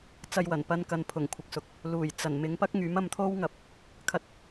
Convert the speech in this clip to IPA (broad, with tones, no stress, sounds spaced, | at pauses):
t͡s ɐ˧ j w ɐ˨˩ n p ɐ˧ n k ɐ˨ n pʰ ʊ˨˩ ŋ kʷʰ ɪ˨ k̚ s ʊ˨˥ k̚ | l uː˨˩ j t͡s ɐ˨˩ n m ɪ˨˧ ŋ p ɐ˥ k̚ ŋ yː˨˥ m ɐ˧ m t̪ʰ o˥ w ŋ ɐ˨ p̚ | kʰ ɐ˧ t̚